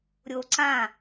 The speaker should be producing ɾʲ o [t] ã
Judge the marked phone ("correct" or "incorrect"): incorrect